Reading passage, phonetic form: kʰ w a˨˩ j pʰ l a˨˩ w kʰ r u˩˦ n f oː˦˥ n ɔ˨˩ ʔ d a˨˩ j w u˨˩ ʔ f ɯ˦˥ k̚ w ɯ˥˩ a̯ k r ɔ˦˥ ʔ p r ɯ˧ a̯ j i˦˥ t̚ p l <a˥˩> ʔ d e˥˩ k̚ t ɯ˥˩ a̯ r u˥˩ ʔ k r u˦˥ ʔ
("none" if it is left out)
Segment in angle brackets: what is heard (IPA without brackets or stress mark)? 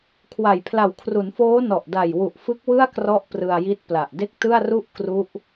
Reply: a˨˩